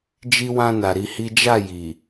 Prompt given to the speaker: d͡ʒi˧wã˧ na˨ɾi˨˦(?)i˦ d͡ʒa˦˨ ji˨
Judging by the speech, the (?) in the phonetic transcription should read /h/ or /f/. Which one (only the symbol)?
h